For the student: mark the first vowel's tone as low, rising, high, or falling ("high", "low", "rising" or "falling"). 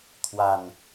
low